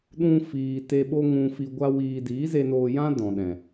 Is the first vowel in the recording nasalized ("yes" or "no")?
yes